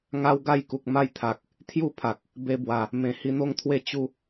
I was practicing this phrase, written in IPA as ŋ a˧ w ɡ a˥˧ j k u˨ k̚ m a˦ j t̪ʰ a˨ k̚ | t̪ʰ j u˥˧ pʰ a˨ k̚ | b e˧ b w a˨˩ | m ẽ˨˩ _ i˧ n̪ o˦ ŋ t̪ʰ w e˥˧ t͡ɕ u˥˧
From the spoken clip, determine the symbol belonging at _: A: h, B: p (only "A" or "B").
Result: A